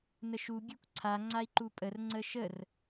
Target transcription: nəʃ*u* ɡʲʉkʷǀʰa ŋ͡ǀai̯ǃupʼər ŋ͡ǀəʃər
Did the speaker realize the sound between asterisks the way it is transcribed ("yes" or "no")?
yes